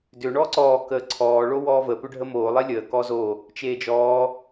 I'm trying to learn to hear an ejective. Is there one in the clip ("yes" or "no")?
no